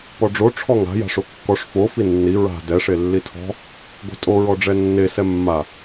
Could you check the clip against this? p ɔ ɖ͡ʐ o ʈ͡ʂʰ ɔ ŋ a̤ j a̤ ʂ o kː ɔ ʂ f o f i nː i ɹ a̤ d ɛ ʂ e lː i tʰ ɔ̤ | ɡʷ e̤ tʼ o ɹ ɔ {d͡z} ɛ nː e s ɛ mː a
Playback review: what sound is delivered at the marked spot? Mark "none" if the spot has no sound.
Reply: ɖ͡ʐ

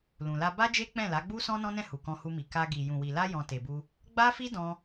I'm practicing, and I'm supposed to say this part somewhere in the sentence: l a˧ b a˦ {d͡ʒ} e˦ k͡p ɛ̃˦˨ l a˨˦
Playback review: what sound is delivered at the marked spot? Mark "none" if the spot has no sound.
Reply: d͡ʒ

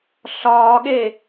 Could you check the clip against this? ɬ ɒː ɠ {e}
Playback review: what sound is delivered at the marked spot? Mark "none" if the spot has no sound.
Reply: e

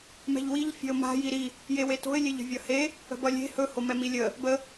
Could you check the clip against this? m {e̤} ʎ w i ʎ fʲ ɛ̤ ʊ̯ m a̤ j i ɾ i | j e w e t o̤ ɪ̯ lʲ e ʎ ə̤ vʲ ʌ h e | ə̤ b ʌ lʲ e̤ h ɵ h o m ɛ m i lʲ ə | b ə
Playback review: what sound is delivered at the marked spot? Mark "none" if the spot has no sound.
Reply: ɛ̤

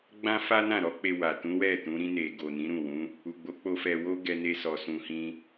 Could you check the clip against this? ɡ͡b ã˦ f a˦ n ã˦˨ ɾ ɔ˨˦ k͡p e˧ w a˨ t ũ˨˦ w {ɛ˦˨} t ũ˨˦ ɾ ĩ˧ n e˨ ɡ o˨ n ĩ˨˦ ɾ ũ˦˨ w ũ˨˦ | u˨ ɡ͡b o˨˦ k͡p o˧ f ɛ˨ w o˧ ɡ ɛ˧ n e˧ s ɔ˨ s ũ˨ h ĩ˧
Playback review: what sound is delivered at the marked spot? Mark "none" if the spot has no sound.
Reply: ɛ˦˨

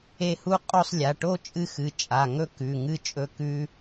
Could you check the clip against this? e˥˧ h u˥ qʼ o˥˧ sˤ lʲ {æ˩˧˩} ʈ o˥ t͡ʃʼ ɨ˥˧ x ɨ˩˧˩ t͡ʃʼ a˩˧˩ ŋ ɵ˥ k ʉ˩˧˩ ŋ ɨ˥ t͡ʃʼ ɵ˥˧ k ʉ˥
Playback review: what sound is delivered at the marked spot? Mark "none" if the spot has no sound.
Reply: a˩˧˩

